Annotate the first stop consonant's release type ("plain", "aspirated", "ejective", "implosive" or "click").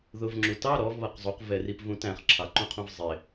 click